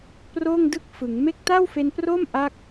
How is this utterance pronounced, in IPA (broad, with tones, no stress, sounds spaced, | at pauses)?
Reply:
p r oː˥˩ ŋ d ɯ˥˩ k̚ f ɯ˩˦ ŋ m e˦˥ k̚ t a˥˩ w f e˧ n p r o˥˩ m ʔ a˥˩ k̚